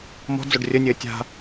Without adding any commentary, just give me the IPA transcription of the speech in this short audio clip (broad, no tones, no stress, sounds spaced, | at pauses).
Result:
m ɔ̤ d͡z o ɖ rʲ ə nʲ ɘː tʲ a̤